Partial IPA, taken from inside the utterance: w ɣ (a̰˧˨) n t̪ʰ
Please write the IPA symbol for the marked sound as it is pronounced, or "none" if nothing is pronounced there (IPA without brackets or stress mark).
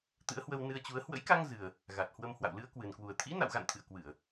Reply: a̰˧˨